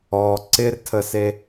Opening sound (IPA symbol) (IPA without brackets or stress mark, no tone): ɔ